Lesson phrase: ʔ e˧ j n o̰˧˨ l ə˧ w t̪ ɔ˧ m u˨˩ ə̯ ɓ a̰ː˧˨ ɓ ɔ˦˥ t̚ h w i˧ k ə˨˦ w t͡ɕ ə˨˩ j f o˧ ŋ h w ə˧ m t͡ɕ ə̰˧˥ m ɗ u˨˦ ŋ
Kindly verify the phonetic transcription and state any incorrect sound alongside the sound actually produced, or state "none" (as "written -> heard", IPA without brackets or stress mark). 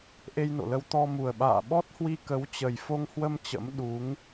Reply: none